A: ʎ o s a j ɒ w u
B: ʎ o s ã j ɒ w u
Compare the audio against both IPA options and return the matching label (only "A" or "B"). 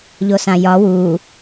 B